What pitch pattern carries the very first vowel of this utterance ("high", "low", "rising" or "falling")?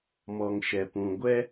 low